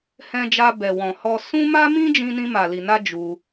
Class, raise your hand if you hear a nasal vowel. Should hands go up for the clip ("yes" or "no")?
yes